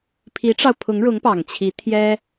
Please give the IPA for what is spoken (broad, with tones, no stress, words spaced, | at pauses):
pʰi˧˥ʈ͡ʂɑ˧ʊ̯pʰʊ˧˥ŋɻʊ˧˥ŋ pɑ˨˩ŋt͡ɕʰi˧˥ t̪ʰjɛ˥